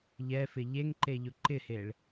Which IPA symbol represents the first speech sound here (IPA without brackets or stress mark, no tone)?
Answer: ʎ